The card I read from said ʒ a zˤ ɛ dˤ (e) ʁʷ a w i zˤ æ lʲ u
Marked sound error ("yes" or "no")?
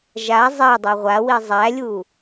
no